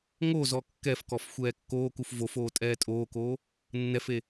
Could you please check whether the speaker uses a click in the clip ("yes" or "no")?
no